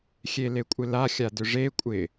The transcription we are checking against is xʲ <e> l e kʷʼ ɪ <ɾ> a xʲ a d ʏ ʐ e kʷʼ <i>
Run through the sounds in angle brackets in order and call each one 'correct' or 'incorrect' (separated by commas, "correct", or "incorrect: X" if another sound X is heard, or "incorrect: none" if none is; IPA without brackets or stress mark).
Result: correct, incorrect: l, incorrect: ɪ